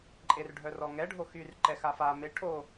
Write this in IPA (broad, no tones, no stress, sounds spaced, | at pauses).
ǃʼ e r ɖʱ œ r ɔ ŋ ɛ ɖʱ o x y r ǃ ɛ x a f a m e ʈʰ o